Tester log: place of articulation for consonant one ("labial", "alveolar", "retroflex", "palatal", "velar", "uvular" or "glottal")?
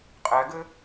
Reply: uvular